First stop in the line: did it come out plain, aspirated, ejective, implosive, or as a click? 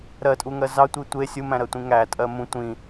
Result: ejective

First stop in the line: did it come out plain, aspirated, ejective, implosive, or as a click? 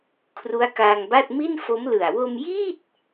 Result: aspirated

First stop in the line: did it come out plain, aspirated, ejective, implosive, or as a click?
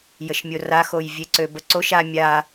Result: click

